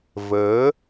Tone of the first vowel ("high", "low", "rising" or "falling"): rising